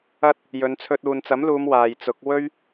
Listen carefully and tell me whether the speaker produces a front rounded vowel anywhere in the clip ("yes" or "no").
no